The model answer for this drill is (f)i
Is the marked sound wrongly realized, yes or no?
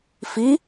no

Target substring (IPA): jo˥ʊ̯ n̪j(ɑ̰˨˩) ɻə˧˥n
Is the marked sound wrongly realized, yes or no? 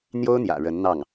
yes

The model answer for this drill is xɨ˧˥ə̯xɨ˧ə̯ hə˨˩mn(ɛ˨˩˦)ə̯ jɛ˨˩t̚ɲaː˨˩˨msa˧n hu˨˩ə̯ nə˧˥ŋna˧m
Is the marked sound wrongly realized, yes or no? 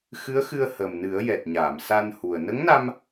yes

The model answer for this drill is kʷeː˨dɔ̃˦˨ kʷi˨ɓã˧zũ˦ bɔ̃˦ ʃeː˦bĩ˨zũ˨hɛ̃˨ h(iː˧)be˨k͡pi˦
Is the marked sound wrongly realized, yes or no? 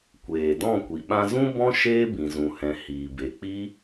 yes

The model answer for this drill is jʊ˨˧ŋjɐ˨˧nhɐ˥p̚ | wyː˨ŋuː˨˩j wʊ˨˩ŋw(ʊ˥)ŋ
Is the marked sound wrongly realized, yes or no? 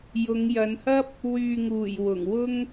no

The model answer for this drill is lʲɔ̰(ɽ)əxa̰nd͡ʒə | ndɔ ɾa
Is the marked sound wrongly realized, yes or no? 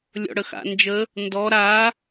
no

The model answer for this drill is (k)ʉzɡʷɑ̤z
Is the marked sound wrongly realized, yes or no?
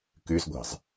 no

